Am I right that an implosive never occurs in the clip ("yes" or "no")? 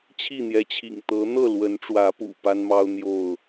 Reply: yes